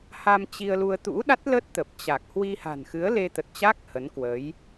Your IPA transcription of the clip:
ha˧mt͡ɕi˧ə̯lu˧ə̯ t̪ṵ˧˥ɗa˦˥t̚lə˦˥t̚ t̪ə˨˩p̚t͡ɕa˨˩k̚ hwi˧ha̤˨˩nxɨ˨˦ə̯ le˧t̪ə˨˩t̚t͡ɕa˦˥k̚ hə˨˦nkwəː˨˦j

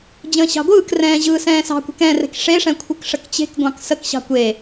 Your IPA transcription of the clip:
d͡ʑə̃ːɕɑ̤ɡʷɯːkrɛ̃ː ʑɯːsɛ̃ːsɑ̤kʷɛ̤k ɛ̃rɛ̤k ʂeʂɛ̃ kʷʰɯkʂəkt͡ɕe̤kɡʷɑ̃k səkɕɑ̤ kʷe

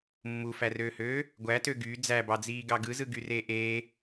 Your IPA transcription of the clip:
mːufærøːhøː | ɡʷætø ɡy d͡zæbɑd͡ziːɡɑ ɡɯzɯɡyreː ʔeː

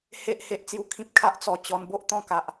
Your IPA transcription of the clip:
he˦ʔ he˦ʔt͡sju˦kʰĩ˦p̚ kʰa˦ʔ t͡sɔ˨˩t͡ɕɔ˧n bo˦ʔt̪ɔ̃˥˧ka˨ʔ

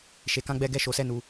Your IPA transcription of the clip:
ʃe˧kã˦ɡ͡bɛ˦ɡɛ˦ ʃo˧sɛ˦ nu˧

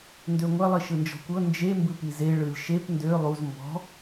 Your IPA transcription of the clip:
ndøŋʷɐ lˠiʃɯnd͡ʒɔ̤kʷɤ nd͡ʒe mbɯpize ɭɯlʲʃep ndø lˠuz mbɔ̤

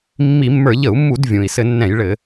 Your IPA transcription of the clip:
mːi˧˩˧mːə˞˧˩˧ ʎə˧˩˧u̯mːu˧˩˧d vʲũ˩i̯ sɘ˧˩˧nːɛ̃˧˩˧jɭɘ˧˩˧

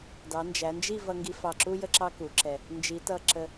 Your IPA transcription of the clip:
dɑ˩˧nd͡ʒæ˩˧nd͡ʒi˥˧ vʌ˧ŋɡi˧fɑ˧˩ǁu˥ jə˥ǁɑ˥ku˩˧ǁɛ˧˩ | nd͡ʒi˩˧tʌ˧˩ ǁə˧˩

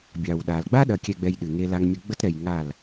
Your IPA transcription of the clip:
bʲɑ˨wɗa˨l ɡ͡ba˦ɗɐ˨kʲɛ˨ɡ͡bɛ˨j ɗɨ˨ŋe˦la˦ŋmʲʊ˦ ɡ͡bə˦tɾɛ˨jŋa˦˨l

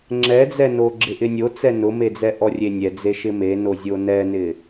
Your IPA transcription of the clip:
ŋ͡ǁɛd͡zɛno ɡ͡ǁɪʔɪnʲot͡sɛ nʊmed͡zɛ ʔɔrʲenʲɛd͡ze ʃɪmenozʲo nɛnɪ

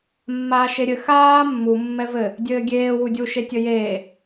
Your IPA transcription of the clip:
mːaːʃeɾʲɘ xaː mːu mːɛvɘ | dʲɘːɡʲeː wudʲu ʃetʲɘjeː

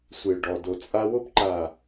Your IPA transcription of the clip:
sʷe˨ɭɖɔ˨ do˨t͡sʼa˦wo˦pǃa˨

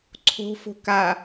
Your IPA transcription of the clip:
ǀʰo̤fo̤ ka

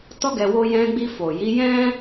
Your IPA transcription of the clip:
tɔ˦ɡɛ˧ wo˧jɛ̃˧ɡ͡bi˧ fo˨ji˨˦jɛ̃˦

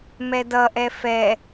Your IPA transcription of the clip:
mɛdʌʔɛ fɛ

